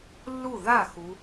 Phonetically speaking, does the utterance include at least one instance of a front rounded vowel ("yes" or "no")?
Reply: no